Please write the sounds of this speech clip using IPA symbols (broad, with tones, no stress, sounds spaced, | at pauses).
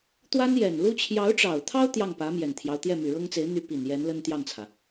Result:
t̪ w a˥ n j ɛ˨˩ n l u˥ t͡ɕʰ j ɑ˧˥ ʊ̯ ʈ͡ʂ ɑ˨˩ ʊ̯ t̪ʰ ɑ˥ ʊ̯ t̪ j ɑ˥˩ ŋ p ä˧˥ m j ɛ˨˩ n t̪ʰ j ɑ˦ ʊ̯ t̪ j ɛ˥˩ m y˨˩ ɻ ɤ˥ ŋ t͡s e˧˥ ɪ̯ n̪ y˥ p i˨˩ n j ɛ˧˥ n l ə˥ n t̪ j ɑ˥˩ ŋ t͡sʰ ä˩